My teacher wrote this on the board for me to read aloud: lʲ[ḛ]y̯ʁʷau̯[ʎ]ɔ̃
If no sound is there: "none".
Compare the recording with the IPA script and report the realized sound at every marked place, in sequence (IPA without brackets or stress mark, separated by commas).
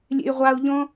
ḛ, ʎ